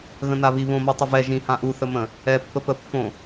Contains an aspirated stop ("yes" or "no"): no